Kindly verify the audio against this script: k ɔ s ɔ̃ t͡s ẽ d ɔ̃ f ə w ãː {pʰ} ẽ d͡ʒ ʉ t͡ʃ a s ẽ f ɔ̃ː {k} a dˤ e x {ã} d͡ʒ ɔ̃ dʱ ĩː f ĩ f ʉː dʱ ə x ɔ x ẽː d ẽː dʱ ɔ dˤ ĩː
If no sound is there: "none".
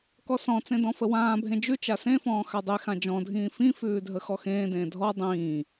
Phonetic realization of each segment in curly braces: bʱ, x, ã

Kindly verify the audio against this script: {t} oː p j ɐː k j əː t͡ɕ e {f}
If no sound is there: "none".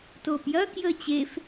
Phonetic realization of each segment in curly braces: t, f

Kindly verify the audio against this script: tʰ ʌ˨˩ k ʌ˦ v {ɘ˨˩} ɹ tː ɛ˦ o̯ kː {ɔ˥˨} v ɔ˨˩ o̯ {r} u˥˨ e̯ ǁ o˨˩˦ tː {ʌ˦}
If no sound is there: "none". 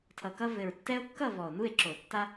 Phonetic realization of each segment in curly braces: ɘ˨˩, ʌ˥˨, n, a˦

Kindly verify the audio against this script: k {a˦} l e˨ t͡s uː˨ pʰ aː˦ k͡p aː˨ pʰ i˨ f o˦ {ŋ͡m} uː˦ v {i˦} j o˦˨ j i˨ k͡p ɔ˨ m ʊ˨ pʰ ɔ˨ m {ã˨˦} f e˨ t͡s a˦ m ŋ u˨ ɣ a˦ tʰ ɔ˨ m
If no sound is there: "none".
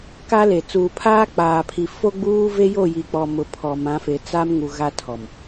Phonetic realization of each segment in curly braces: a˦, ɡ͡b, e˦, ã˨˦

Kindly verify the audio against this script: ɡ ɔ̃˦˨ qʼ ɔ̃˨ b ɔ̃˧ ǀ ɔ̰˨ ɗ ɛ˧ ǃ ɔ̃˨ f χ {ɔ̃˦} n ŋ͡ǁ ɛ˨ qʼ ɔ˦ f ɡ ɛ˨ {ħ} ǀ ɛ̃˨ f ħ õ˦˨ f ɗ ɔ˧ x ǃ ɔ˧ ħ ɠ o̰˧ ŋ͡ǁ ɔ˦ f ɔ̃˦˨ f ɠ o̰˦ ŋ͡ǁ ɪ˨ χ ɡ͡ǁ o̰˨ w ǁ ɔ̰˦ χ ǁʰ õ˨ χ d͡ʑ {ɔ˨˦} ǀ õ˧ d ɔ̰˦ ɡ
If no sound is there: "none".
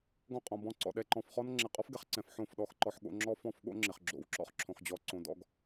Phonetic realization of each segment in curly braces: ɔ˦, χ, ɔ˨˦

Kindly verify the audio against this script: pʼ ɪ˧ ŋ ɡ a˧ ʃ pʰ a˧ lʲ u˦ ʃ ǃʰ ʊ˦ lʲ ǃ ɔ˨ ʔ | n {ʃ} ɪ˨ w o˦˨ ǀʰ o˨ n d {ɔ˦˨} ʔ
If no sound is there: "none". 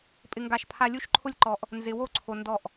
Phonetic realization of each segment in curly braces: z, ɔ˦˨

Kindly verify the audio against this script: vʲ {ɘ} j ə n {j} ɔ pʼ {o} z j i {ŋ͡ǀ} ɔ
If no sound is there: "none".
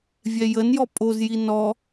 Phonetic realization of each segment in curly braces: ɛ, j, o, n

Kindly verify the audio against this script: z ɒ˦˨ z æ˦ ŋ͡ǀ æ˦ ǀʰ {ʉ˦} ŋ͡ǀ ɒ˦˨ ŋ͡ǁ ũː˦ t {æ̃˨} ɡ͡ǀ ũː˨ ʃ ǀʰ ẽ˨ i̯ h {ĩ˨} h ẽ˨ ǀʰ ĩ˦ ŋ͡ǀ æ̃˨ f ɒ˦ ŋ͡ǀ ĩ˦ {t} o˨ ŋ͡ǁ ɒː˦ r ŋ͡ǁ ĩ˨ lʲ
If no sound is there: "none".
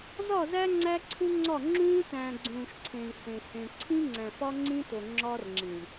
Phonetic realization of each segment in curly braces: u˦, æ̃ː˨, ẽ˨, t

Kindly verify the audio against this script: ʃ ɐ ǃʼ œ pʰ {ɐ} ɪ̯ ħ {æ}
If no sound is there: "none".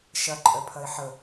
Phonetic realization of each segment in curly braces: ɐ, ə

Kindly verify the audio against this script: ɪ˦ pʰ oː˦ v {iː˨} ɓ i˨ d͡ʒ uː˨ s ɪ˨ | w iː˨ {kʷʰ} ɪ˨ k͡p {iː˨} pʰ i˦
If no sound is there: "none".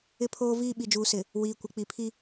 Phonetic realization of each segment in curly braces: iː˦, kʷ, i˨

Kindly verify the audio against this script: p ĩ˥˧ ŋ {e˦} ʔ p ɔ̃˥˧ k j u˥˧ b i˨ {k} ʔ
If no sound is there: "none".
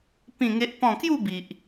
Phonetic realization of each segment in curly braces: e˦, none

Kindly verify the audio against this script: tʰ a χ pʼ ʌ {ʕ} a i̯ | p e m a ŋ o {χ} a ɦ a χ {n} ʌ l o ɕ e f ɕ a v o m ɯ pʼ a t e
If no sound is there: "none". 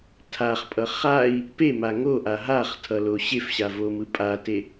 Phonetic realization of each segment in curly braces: χ, ʔ, tʰ

